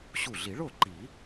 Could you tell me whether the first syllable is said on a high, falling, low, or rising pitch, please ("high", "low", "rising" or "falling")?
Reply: falling